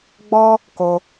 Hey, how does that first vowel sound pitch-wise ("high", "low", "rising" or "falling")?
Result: high